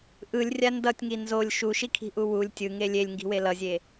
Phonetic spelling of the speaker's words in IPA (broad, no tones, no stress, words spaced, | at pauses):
ʔɯlʲ rʲandʌtʲŋi nzolʲ ʃuʃikʰi̤ ʔuwulʲ tʲɯŋe lʲelʲŋɡi̤we lʌzʲe